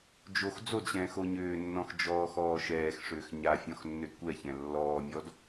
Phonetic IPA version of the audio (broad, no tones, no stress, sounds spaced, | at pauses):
d͡ʒ o x d͡z o d ɕ ɛ̃ː x o ɲ ʏː nː ɔ̃ x d͡ʒ ɔː x ɔː ʃ ɛː x ʂ ʏː x ɲ a fʲ ɔ̃ x nː ʏ d kʷ ɛ ç ɛ̃ lː ɔː mʲ ɔ d